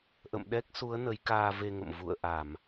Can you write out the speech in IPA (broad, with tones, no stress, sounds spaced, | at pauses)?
ʔ ə̰˧˨ m ɗ ɛ˦˥ k̚ s u˨˦ ə̯ n ə˨˦ j k aː˧ v e˧ ŋ ə̰˧˨ m v ṵ˧˨ ə̯ ʔ a˧˩˨ m